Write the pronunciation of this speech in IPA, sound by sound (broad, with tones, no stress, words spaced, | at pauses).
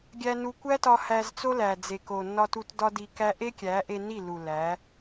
ɡʲæ˧nu˧ kʷæ˦tɒ˧ hæ˧zt͡so˦læ˨d͡ze˨ ko˨ nːɒ˧ tu˧tdɒ˦di˧kæ˦ ʔe˦kʲæ˨˦ʔe˧ni˦˨ lu˨læ˨˦